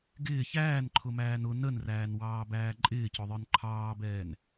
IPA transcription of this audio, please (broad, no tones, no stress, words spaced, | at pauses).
ɡɪː çæːnǃʰʊmæːn ʊ nənræːnwɑːbæː ǃʼɪːcʊðˤə˞n ǃʰɑːbɛːn